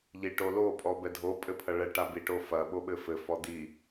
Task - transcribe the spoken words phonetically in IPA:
ʎiʈolo pʼɔbɛdʱo pʼɘpʰɐɭɛ ʈabi ʈofɐ ɓoɓɘfɘ fɔd̪i

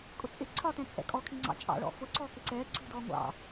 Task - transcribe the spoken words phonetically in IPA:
kʼʊt͡sʼɪ ǀʰɒtɛ̃ t͡sʼɛ̰kʼɔkʰiŋ͡ǀɑ̰ t͡ʃʼɑ̰ɭɔ̰ fʊ ǀɔːkɪǀɛː ǀi̤dɔː ŋʷɑ̰

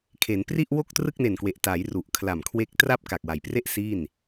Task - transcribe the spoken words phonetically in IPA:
kʰe˩˦npri˥˩ʔ wo˥˩k̚ trɯ˥˩k̚ne˨˩nkwe˨˩ʔ ta˩˦j ru˨˩ʔkʰla˨˩m kʰwe˦˥k̚tra˥˩p̚ ka˨˩k̚wa˨˩jpre˥˩ʔ siː˥˩n

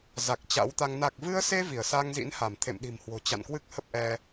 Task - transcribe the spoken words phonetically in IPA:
za˨˩k̚t͡ɕa̰˧˥wt̪a˧ŋ na˨˩k̚vɨ˧ə̯se˧ vi˧˩ə̯sa˧ŋzḭ˧˥nha˧˩m t̪ʰḛ˧˨mɗi̤˨˩mhwo̤˨˩ t͡ɕa̰˧˨nkwɨ˦˥k̚ hə˦˥p̚ʔɛ˧

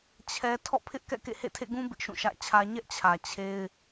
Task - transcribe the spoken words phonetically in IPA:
t͡ɕʰɛ˦ tʰɔ̰˦˨pʰɪ˦ʔkɛ̰˦˨ kḛ˦˨hḛ˦˨tʰḛ˦˨ɡũ˦ bɪ˦ʔʃũ˦˨ʃä̰˦˨t͡ɕʰä˦ ɲɛ˦ʔt͡ɕʰä˨ t͡ɕʰe˦ɪ̯

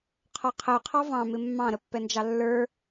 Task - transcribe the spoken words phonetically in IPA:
qʰɔqʰəy̯ qʰɑvɑ̃ mɪmːɑ̃ ɾəpːɛnd͡ʒɑlːə˞

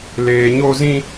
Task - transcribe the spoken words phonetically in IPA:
leː˨ɲo˧zĩ˧

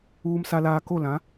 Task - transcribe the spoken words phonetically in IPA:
uː˨msa˨laː˨ko˦˨ lã˨˦

